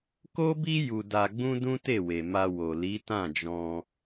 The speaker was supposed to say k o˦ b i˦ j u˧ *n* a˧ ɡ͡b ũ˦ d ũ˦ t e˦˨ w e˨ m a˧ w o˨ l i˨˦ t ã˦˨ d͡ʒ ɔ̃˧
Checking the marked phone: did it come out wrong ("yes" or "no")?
yes